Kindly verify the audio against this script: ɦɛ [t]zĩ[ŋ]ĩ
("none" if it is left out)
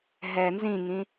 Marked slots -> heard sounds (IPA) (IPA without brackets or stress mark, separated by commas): n, ŋ